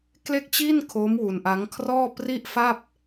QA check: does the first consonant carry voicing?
no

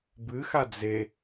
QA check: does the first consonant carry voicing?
yes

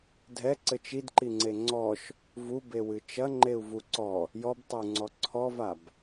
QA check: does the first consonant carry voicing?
yes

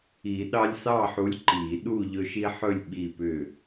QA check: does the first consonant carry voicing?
yes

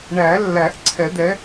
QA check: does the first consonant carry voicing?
yes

